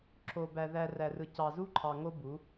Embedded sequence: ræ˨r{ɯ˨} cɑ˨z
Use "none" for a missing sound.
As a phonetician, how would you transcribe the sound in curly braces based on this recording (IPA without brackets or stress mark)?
ɯ˨